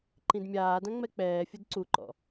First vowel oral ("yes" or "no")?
no